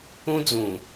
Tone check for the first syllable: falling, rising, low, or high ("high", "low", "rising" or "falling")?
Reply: high